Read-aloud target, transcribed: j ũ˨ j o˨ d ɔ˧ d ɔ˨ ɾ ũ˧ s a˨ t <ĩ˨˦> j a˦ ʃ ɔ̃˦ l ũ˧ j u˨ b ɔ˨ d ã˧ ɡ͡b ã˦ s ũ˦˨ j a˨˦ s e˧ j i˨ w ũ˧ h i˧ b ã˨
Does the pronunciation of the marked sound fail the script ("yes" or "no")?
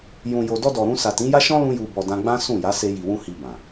no